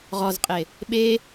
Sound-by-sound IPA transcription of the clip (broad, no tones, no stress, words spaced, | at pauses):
ʁɔzqʼe | ɓe